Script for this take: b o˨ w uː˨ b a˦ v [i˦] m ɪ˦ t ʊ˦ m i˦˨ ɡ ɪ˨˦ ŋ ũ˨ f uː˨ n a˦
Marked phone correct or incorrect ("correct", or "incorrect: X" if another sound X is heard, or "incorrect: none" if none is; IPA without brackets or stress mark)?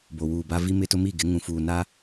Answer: correct